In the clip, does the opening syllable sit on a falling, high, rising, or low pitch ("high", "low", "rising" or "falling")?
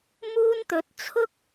high